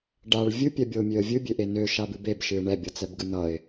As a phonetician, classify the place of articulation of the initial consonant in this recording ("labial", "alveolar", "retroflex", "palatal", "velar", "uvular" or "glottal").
retroflex